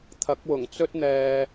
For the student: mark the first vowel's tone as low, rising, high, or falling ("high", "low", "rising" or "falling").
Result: rising